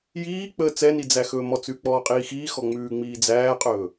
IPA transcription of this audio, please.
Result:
j iː k͡p əː t͡s ɛ n i d͡z æ x ɵː m ɔ t͡s ʉ k͡p ɔː qʼ iː x iː x ɔ ŋ͡m ʉː ŋ͡m iː d͡z æː qʼ ɵː

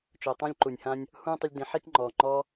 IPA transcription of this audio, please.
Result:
t͡ʃ ʊː˨ tˤ ũ˦ lʲ ǃ u˨ nʲ h ã˦ nʲ | h ũ˦ tˤ ʊ˧ lʲ d ĩ˨˦ ħ i˦ k ŋ͡ǃ ɔː˨ ŋ͡ǃ ɔː˦

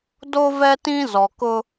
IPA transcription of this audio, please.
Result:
d o˦ v ɛ˦ t ĩ˦ z ɔ˨ k ʊ˦

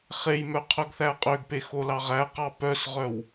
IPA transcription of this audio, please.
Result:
χ e j m œ qʰ œ ɡ θ æ qʼ ø ɡ p e x o l ɑ ʁ æ q ɑ p œ s ʁ œ w

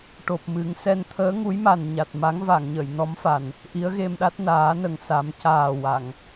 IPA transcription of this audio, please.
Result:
ʈ o˨˩ p̚ m ɨ˨˩˦ ŋ s ɛ˧ n t̪ʰ əː˧˥ ŋ u˧˥ j m a˨˩ n ɲ a˨˩ t̚ m a˧˥ ŋ v a˨˩˨ ŋ ɲ ə˨˩˨ j n ɔ˧˥ m f a˨˩ n | ʔ i˧˥ ə̯ ɣ e˧ m ɗ a˦˥ t̚ n aː˨˩˦ n ə˨˩ ŋ s a˨˩˦ m c aː˨˩ w a˨˩˨ ŋ

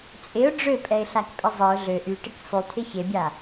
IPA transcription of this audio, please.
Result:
t͡sʼ ɪ ʊ̯ ɖ͡ʐ ø pʼ ɛ ɪ̯ ɬ a k pʼ ɪ zˤ ɪ ʊ̯ ɮ ø ʔ y ʈ ɪ k sˤ y t̪ʰ ɪ ç e bʲ a

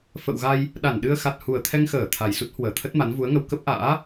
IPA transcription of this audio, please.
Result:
f ə̰˧˨ w ɣ a˧ j | ɗ a˧˩ n ɗ ɨ˧ ə̯ x a˨˩ t̚ h u˨˩ ə̯ t̪ʰ ɛ˧ ŋ x əː˧˩ t̪ʰ a˨˩ j s u˦˥ t̚ h w əː˧˩ t̪ʰ ə˦˥ t̚ m a˨˦ n v u˨˦ ə̯ ŋ ə˧ w k ə˦˥ p̚ ʔ a̰ː˧˥

